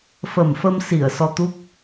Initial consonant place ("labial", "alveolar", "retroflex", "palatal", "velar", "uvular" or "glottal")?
labial